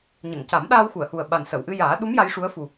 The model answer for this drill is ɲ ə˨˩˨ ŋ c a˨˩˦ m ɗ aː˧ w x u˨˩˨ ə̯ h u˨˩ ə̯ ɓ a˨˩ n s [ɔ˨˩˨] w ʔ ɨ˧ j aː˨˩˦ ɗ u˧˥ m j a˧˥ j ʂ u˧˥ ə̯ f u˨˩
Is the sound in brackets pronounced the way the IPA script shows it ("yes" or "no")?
no